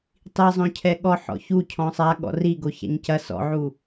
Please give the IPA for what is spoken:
tˤ i zˤ õ cʰ ɛ ɠ ɔ ħ ɔ̰ ç u cʰ ɔ̃ sˤ a ɠ ɔ̰ r i ɡ o ç a̰ ɲ c ɐ s ɔ̰ ʕ u

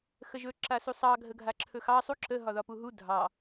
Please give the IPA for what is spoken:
x ə ʒ ɵ ǁ a s u sˤ ɑ ɡʱ ə ɡʱ a ǁʰ ɵ x ɑ sˤ u ǁ ə ɦ ɒ ð ɒ p u ɦ u dʱ ɑ

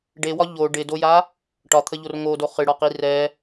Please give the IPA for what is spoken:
ɖ e w ɒ ʎ o ɖ ɪ d o j a | ʈ ɒ t̪ʰ ə ʎ o r ŋ o d o χ ɨ ɽ ɒ q i r ɛ

